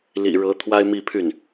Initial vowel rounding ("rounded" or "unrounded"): unrounded